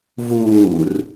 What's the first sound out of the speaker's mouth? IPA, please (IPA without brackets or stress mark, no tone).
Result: v